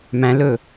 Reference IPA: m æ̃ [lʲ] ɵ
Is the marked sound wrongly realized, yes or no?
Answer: yes